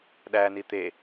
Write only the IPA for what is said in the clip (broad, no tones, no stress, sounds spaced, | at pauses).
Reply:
ɗ æ n i t̪ e